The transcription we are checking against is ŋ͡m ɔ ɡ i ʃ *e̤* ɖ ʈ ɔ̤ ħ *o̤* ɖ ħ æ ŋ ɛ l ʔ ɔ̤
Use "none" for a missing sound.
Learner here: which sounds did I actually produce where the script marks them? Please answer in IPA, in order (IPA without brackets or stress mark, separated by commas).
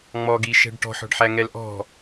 ɛ̤, ɔ̤